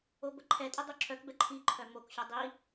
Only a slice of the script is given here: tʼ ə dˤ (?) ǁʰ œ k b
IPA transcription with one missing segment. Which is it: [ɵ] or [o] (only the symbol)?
o